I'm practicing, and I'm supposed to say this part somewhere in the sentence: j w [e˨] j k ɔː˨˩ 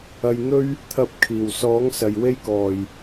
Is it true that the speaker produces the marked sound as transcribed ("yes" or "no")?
no